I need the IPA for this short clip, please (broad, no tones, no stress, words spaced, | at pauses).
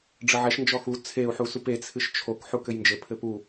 ɖ͡ʐɘʕɛʃ nd͡ʒɔxu t͡sʰeu̯ ħusupe t͡sʰɨʃt͡ʃʰok ħukɘjnd͡ʒɘ pʰɘpu